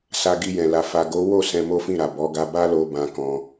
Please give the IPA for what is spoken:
s a˧ ɡ i˧ j ɛ̃˨ l a˨ f a˨ ɡ o˨˦ w o˦˨ s ɛ̃˧ m o˦ f ĩ˦˨ ɾ a˨ b ɔ˨˦ ɡ a˧ b a˦ l o˧ b ã˧ k ɔ̃˧

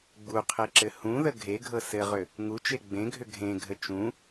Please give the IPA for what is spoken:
ɡ͡b u qʰ e ǁ ɘ h ũ ð ə ɡʱ e ɡʱ ɤ s ɘ ʁ ʏ | ŋ u t͡ʃ e ɡ͡b ẽ ɡʱ ʏ ɡʱ ẽ ɡʱ ə t͡ʃ ũ

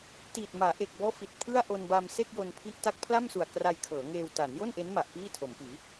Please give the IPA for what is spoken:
t iː˨˩ t̚ m aː˩˦ ʔ e˨˩ k̚ b ɔː˦˥ f i˨˩ t̚ pʰ ɯ˥˩ a̯ ʔ o˧ n b a˧ m s e˥˩ k̚ j o˧ n pʰ i˦˥ ʔ t a˦˥ k̚ pʰ l a˥˩ m s u˨˩ a̯ k r a˧ j kʰ ɤː˩˦ ŋ eː˧ w t aː˩˦ n j o˥˩ n ʔ e˦˥ n m a˨˩ ʔ p iː˥˩ tʰ o˩˦ m p iː˩˦

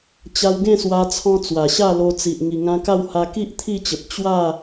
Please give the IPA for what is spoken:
t͡ɕ a˧ w ɡ ẽ˥˧ s w a˧ t͡sʰ ɔ̃˧ t͡s w a˨˩ ɕ a˥˧ l o˧ t͡s i˨ ʔ ŋ i˨˩ ŋ ã˧ k a˥˧ w h a˧ k i˦ ʔ t̪ʰ i˥˧ t͡ɕ ə˨ p̚ t͡ɕ w a˥˧

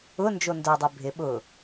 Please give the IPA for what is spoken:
ʊ n d͡ʒ o n d œ dˤ ø bʱ ɪ ɓ ʊ

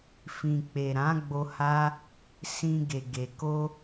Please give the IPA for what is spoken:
f ĩ˨ k͡p e˨ ɾ ã˨˦ ɡ͡b o˧ h a˦ | s ĩ˧ ɡ e˨ ɡ e˨ k o˧

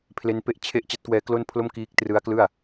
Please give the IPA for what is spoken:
pʰ l e˦˥ n p e˥˩ ʔ t͡ɕʰ e˥˩ ʔ t͡ɕ a˦˥ t̚ k w ɛː˦˥ k l o˥˩ n pʰ l o˥˩ m k iː˦˥ k̚ t r ɯ˦˥ a̯ k l ɯ˥˩ a̯

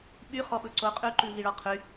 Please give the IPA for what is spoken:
ɓ y χ ɔ ɓ ɵ ǀ o qʼ ʉ ǃ ʉ v i ɭ ɔ qʰ y

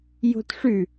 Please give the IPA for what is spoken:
j o̤ t ʂ ʉ

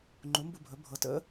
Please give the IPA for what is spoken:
ŋ͡ǃ u˩˥ m b u˦˨ bʱ ɵ˩˥ bʱ ɤ˩˥ t ə̰˩˥

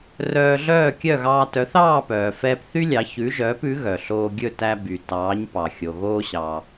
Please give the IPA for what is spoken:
r œː˧ ɮ œː˥˩ kʲ œ˥˩ ɣ ɑː˧ t œ˩˥ θ ɑː˥˩ p œː˩ f ɛː˧ p θ y˥ lʲ ɑ˩˥ ç ʉ˩˥ ʒ œː˩˥ p ʉ˩˥ ɣ œ˩ ɬ oː˧ ɡʲ ɵ˥˩ t æ˧ b y˩ t ɑː˩˥ ɲ p ɑ˩ xʲ o˩ ɣ oː˧ ɕ ɑ˩

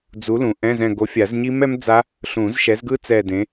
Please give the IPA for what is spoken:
d͡z u˨˥ l ũ˨ ʔ ɛ̃˧˥˧ z ɛ̃˦˨ ɡ o˨˥ fʲ a˨˩˦ z ɲ i˦˥ m ɛ˦˥ m d͡z a˦˥ | ɬ ũ˨˩˦ z ʃ ɛ˨˥ z ɡ ɯ˦˥ t͡s ɛ˦˨ d ẽ˨˥

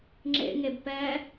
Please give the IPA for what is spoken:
ŋ͡ǁ ḛ ŋ e b p ɛ

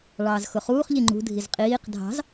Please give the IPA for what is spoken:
ɭ ɑː z x ʊ χ uː χ ʎ i ŋ͡ǃ ṳ dʱ i z qʼ iː q dʱ ɑ̤ z

